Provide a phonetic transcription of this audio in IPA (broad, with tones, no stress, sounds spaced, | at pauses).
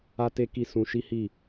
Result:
a˦ t e˦ k i˦˨ s ũ˧ ʃ i˦ h i˦˨